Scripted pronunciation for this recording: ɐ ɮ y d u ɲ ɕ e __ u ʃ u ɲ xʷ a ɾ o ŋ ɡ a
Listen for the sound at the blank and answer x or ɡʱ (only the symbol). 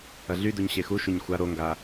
x